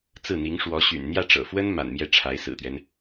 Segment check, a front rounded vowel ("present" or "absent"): present